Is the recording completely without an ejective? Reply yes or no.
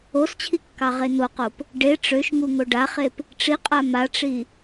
no